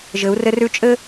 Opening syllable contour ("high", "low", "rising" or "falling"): rising